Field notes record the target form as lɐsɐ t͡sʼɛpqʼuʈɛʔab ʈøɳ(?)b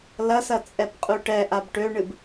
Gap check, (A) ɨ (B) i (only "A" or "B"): A